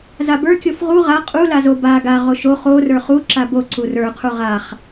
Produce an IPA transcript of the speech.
z a b ə˞ kʲ o f ʁ u ʁ a qʼ u l a z o b a ɡ a ʁ o ʃ o χ o r ə˞ χ u ǁ a b o ǀ u r ə˞ qʰ u ʁ a χ

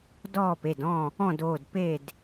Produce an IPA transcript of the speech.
d ɔː˥˨ p e˩˧˩ d ɔ̃˥˨ | ɔ̃˥˨ d oː˩˧˩ d p e˥˨ d

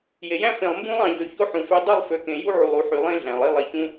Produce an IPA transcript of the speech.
j e˨ j æ̃˦ f ẽ˨ lˠ m b ũ˦ lˠ ɑ̃˨ ʎ ø˨ ç o˦ ħ ũ˨ f ø˦ dˤ y˦˨ lˠ f ø˨ k ẽ˨ j u˦ ʕ u˨ lˠ u˨ ħ y˨ lˠ ẽ˦ ɮ æ̃˨ lˠ i˦ lˠ i˨ ç ũ˦

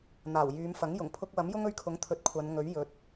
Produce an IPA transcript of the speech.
n̪ aː˨˩ w j yː˨˧ m f ɐ˨˥ ŋ j ʊ˨˩ ŋ pʰ ʊ˥ k̚ w ɐ˨˥ m j ʊ˥ ŋ ɵ˧ ɥ kʰ ʊ˨˥ ŋ t̪ʰ ɵ˧ t̚ kʷʰ ɐ˨˧ n ŋ ɵ˨˥ ɥ j ɵ˨˥ t̚

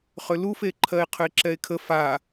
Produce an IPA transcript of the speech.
χ ʏ l u f e ǃʰ ɜ e̯ qʰ ʏ e̯ ǁ ɛ e̯ kʰ ə f a

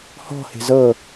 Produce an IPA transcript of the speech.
h ɔ̤ h e̤ z ɤ

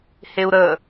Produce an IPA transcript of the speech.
h e u̯ ɾ ə

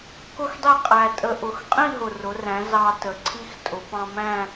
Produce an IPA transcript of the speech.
k ʊ˥˧ x dˤ i˥˩ qʼ æ˨˩ tʼ ə˧ ʔ ʊ˩˧ x qʼ ĩ˥˧ ɦ ʊ˨˩ r ʊ˩˧ r æ̃˩˧ z ɑ˧ t ə˩˧ ǀʰ i˧ x tʼ ʊ˩˧ p ɑ̃˧ m æ̃˥˧

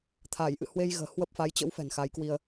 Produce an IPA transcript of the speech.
t̪ʰ aː˧˩ j ʔ ɨ̰˧˨ h w e˧ j ɣ ə̤ː˨˩ h w ə˦˥ p̚ f a˨˦ j t͡ɕ ə̰˧˥ w f ɛ̤˨˩ n x a˨˦ j k w i˧ ə̯

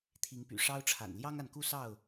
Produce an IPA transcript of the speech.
t̪ʰ i˨˦ ŋ p y̰˨˩ ʂ ɑ˦ ʊ̯ ʈ͡ʂʰ a̰˨˩ n l j ɑ˦ ŋ a˨ n k u˥˨ s ɑ˥˨ ʊ̯

